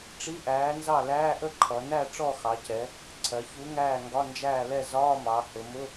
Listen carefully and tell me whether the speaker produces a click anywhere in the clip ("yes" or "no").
yes